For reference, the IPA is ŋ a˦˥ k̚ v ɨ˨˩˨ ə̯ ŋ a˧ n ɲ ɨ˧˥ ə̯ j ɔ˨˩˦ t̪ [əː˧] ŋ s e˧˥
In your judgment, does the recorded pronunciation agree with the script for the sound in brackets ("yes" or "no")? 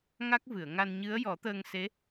yes